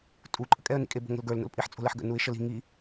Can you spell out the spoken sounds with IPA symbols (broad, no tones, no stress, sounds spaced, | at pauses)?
tʼ u ǃʼ ə kʼ ɛ ə̯ n ḭ kʼ e b o̤ ŋ ə̤ l ɡ ə˞ l n o̰ l pʼ i ħ t͡sʼ o̤ l ɛ ħ ɡ ə̰ n u ɪ̯ ʃ ə l i̤ ŋ i